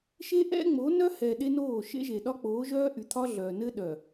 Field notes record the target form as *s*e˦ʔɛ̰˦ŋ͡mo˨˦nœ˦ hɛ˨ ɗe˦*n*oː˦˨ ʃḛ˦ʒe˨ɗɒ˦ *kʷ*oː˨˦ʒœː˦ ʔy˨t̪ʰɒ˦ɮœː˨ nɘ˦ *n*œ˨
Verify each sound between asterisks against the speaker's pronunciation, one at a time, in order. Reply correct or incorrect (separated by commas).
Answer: incorrect, correct, incorrect, incorrect